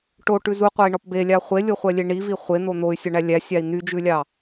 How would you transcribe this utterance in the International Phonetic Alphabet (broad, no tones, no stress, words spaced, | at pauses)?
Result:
ʈoʈʉ zuqʷɑi̯ɳɔp belʲɑ χʷelʲoχʷɛlʲe ɳivi χʷen̪o n̪oy̯sʲɔɳæ lʲæsʲɑi̯ n̪yd͡ʒʉlʲɑ